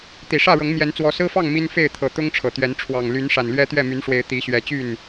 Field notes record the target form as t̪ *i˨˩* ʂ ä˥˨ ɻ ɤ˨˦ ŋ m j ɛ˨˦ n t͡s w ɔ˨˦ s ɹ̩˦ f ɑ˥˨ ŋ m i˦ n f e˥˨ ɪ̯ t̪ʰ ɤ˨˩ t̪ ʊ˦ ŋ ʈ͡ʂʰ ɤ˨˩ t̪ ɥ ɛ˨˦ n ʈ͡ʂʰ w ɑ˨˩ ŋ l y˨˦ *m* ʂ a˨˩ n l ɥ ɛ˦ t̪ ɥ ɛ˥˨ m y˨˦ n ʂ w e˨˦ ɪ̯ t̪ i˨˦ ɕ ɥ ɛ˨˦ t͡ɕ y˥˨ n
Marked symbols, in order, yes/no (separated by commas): yes, no